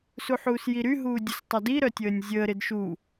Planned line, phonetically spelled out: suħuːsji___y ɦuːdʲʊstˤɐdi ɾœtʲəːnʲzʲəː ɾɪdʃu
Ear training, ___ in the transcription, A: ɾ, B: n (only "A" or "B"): A